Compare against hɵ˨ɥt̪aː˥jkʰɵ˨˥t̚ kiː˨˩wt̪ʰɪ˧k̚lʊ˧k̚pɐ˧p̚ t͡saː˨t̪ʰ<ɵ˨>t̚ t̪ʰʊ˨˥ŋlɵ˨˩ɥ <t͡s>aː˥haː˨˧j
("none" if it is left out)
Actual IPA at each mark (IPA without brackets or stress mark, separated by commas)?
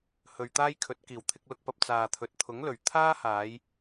ɵ˨, t̪ʰ